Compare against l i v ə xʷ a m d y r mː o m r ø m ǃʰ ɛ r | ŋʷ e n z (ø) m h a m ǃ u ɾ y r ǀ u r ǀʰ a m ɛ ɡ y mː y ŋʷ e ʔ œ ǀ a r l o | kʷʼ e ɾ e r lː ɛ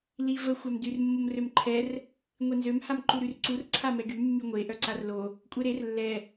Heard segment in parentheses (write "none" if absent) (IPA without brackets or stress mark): ø